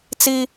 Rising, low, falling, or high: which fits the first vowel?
high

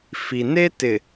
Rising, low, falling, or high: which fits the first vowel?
low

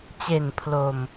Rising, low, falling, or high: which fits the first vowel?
low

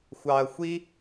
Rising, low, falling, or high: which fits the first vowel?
low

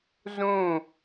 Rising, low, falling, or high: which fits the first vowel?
falling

